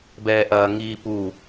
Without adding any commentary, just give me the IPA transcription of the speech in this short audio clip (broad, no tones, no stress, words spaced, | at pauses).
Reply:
bɛːʔɐːŋiːpu